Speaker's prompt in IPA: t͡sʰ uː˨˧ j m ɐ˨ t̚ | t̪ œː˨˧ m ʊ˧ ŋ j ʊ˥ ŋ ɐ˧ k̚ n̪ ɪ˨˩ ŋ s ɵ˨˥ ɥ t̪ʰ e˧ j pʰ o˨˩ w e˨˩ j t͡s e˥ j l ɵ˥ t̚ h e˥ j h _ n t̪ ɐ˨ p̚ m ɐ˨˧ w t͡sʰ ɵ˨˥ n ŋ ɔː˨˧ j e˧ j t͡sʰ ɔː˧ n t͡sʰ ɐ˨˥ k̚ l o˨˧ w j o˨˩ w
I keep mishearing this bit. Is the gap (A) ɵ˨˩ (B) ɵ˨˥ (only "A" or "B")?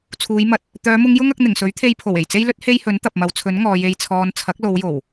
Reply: B